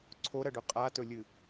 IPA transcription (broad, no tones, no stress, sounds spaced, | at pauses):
ǀʰ o ɾ ɐ ɖ ɵ qʼ a t ɵ lʲ ɨ